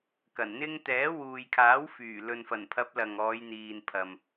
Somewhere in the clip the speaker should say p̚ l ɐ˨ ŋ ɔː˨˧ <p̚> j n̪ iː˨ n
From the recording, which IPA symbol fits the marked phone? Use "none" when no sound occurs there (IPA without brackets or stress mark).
none